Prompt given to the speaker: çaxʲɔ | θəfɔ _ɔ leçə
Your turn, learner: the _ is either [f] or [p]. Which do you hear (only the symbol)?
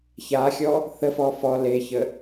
f